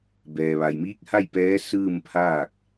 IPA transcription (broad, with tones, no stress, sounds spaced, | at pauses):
b ɛː˩ ʋ a˩ j m iː˧˥ k̚ h a˥˨ j p ɛː˧˥ s ɯː˥˨ m pʰ aː˥˨ k̚